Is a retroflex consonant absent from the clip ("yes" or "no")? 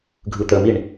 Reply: no